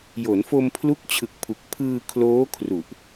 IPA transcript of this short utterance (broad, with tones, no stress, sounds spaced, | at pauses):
j o˩˦ n f o˧ m pʰ l u˦˥ k̚ t͡ɕʰ ɯ˨˩ k̚ pʰ u˨˩ k̚ pʰ ɯː˧ kʰ l oː˦˥ kʰ r u˨˩ ʔ